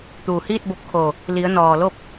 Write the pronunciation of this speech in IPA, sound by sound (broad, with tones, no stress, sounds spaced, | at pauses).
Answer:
t̪ uː˩ h iː˥˨ t̚ b o˧ p̚ kʰ o˩ | l i˩˧ ə̯ n ɔː˩ l o˥˨ p̚